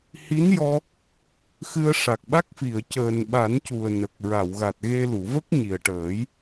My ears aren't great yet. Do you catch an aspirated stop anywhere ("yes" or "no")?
no